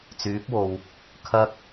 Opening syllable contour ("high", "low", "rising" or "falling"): rising